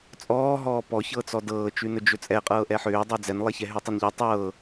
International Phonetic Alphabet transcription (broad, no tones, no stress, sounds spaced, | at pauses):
t͡sʼ ɔː ɦ ɔː p ɔ ç ɤː t͡s ɔ d ɤː t͡ʃ ʉ n ɵ d͡ʒ ɵ t͡sʼ ɛ qʼ ɤː ʔ ɛ ħ ʏː dˤ ɛ d͡z ɛ n lˠ ɛ ç ɛ ɦ ʉ tˤ ɤ n ʎ ɔ tˤ ɤː